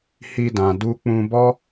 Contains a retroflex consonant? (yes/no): no